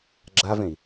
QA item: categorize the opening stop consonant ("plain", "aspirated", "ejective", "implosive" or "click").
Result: click